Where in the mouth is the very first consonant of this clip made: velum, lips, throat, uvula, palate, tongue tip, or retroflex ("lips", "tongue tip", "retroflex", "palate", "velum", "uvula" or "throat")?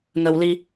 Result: velum